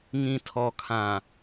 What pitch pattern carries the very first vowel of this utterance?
low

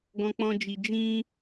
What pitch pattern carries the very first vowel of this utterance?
low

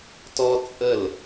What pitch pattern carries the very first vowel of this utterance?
high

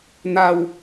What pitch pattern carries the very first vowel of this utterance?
low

